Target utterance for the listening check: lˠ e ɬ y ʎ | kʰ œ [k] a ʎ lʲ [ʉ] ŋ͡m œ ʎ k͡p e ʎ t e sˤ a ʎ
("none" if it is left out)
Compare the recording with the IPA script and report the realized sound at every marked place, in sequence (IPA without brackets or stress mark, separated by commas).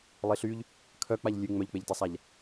k͡p, ʉ